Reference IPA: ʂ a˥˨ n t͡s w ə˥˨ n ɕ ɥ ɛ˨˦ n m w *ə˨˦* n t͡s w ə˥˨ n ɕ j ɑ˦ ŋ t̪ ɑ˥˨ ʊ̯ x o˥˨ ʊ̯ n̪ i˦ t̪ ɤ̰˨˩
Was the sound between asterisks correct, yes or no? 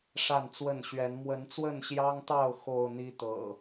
yes